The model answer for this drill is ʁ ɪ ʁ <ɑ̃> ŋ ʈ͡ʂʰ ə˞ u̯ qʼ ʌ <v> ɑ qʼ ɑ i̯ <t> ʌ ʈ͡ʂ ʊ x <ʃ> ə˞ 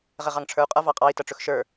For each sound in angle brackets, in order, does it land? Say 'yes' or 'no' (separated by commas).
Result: no, yes, yes, yes